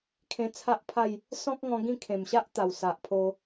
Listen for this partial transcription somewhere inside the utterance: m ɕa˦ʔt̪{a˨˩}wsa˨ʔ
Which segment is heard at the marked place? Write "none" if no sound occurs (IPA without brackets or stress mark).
a˨˩